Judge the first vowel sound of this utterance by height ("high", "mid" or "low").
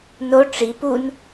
mid